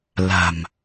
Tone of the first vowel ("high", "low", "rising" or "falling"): low